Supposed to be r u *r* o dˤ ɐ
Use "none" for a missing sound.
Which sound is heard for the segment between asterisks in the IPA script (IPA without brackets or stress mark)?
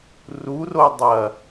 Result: r